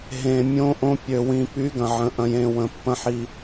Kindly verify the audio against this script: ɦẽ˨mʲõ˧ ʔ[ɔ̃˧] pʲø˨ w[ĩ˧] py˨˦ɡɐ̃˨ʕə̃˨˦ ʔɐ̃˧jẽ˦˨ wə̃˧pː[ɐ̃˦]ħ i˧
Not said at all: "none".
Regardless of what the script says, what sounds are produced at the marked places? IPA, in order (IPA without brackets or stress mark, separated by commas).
õ˧, ĩ˨, ɐ̃˦